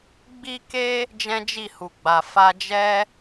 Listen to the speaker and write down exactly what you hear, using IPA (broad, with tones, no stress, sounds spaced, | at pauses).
ɡ͡b i˦ k e˦ | d͡ʒ ɛ̃˦ d͡ʒ i˦˨ h u˨ ɡ͡b a˨ f a˧ d͡ʒ ɛ˦